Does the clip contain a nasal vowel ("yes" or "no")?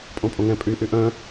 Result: yes